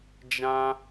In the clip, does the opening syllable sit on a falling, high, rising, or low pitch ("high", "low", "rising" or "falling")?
high